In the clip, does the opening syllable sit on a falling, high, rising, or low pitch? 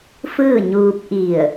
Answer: falling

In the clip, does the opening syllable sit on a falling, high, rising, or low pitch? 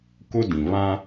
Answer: high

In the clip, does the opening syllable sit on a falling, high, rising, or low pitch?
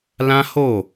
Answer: high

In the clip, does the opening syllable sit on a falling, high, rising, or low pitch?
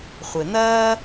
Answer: low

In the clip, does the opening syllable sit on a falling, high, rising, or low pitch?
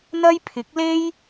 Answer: high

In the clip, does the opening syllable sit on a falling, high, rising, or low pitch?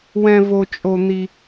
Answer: high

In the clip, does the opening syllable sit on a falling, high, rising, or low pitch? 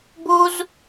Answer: high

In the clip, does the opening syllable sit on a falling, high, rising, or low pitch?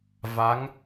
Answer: rising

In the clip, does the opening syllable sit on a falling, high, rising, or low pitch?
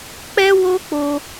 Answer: high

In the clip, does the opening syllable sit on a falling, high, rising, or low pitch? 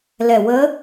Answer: low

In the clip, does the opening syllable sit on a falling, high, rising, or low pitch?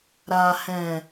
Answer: low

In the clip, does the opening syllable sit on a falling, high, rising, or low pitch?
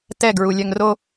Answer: falling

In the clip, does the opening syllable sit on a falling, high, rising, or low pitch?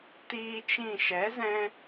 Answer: high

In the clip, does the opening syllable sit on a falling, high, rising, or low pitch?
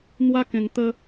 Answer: high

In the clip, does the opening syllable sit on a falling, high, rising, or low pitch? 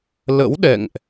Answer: rising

